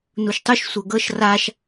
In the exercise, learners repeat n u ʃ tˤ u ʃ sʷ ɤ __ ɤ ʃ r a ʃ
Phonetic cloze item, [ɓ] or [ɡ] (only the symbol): ɡ